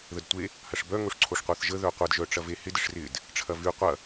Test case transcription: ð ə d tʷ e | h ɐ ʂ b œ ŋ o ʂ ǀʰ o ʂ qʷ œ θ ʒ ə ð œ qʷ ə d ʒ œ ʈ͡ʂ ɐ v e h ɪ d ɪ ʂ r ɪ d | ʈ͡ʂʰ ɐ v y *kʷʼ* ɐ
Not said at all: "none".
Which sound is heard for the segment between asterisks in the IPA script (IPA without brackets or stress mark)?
qʷ